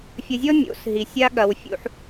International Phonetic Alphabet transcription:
fʲ ɐ˧ zʲ ɔ˦ mʲ o̰˨˦ s ɦ i˨ sʲ a˦ ɠ ɐ˧ w fʲ ṵ˧ ħ

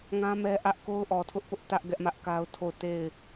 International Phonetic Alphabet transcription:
ŋ ã˦ m ɛ˦ ʔ ä˦ ʔ k o˦ ʊ̯ ʔ ɔ˨ tʰ ʊ˦ ʔ p ʊ˦ ʔ t ä˦ ʔ ɡ ɛ˦ ʔ m ä˦ ʔ k a˦ ʊ̯ tʰ o˦˨ ʊ̯ t e˦˨ ɪ̯

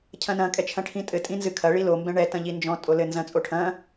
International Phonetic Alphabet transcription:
cʰ ɐ̃ n ɐ̃ kʼ ɛ t͡ʃʰ ɐ̃ ʈʰ ĩ tʼ ɘ tʼ ĩ n z ɨ kʰ ɐ ɭ i l o m b ɛ̃ ɳ ɛ t ɐ̃ ʎ i n d͡ʒ ɔ̃ tʼ o l ɘ n z ɐ̃ t͡sʼ o ʈʰ ɐ̃

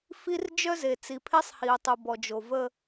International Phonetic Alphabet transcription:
f i˦ r d͡ʒ œ˦ z e˨ t͡s i˨ pʰ e˦ sˤ h i˨ ʊ̯ tˤ u˨ b ɔ˨ d͡ʒ o˨ v ə˦

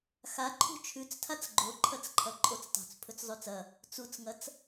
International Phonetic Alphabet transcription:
x a ǃʰ ṳ t͡ʃʰ ʉ t͡s tʰ a t͡s ɡ͡ǃ o ǃʰ ɐ t͡s ǃʰ ɐ ǃʼ o t͡s tˤ ṳ t͡s pʰ ɵ t͡s zˤ ʉ t͡s ɐ | t͡s u t͡s ŋ ɐ t͡s

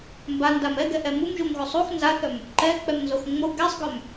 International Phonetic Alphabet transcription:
m b a n d a m ɛ ɡ ɛ ʔ ɛ m u m ʒ u m ɣ o sˤ u x n z a θ œ m | ǃ ɛ k͡p ɛ m n z o x ŋ͡m o ɡ ɛ sˤ ɡ œ m

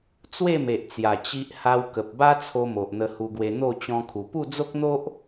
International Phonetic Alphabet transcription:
t͡s w e˥˧ m e˨ ʔ t͡s j a˨˩ t͡ɕ i˦ ʔ h a˦ w k ə˨ p̚ b a˦ t͡sʰ o˧ m o˨ ʔ n̪ ə˧ h u˧ ɡ w e˧ n̪ o˥˧ t͡ɕ ɔ̃˦ kʰ u˧ p u˥˧ d͡z o˦ k̚ n̪ o˦ ʔ

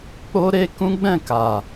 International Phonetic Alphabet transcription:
k͡p o˧ ɾ e˧ k ũ˦ ɡ͡b ɛ̃˦˨ k a˨

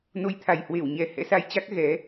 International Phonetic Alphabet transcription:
n o˨˦ j t̪ʰ a˨˩ j h w e˧˩ w ɲ ɛ˨˩ h ɛ̰˧˥ s a˧ j t͡ɕ a˦˥ k̚ ɣ ɛ˨˦

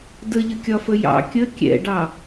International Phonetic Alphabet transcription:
d ə ʎ ə kʲ ɒ f ə j ɑ̰ kʲ ə kʲ ɛ̰ ɖ ɑ

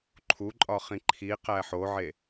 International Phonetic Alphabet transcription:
ǃʰ u ǃʼ ɒ χ ĩ ǃʰ i q æ ħ o ʕ e

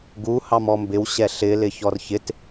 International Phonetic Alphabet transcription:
ɡ u h ɑ m ɔ m b ɪ w ɕ ɛ ɬ ɪ l ɪ ç ɔ r ç ɪ t

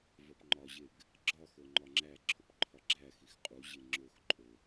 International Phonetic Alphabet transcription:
v ɒ p ŋ͡ǃ ɒ ʑ e ɡ | ɡ͡ǁ ɒ x o ŋ͡ǃ ɒ ŋ͡ǁ æ ǁʰ o p ǃʰ ɒ ɡ͡ǁ æ x i x qʼ u ʑ e ŋ͡ǁ o x ǃʼ o

